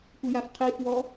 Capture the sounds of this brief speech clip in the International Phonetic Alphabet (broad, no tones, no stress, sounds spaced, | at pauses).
kʷ ɪ j a f qʰ i f w ɔ